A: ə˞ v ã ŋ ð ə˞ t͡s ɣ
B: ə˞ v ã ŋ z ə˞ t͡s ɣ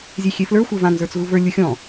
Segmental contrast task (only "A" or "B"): B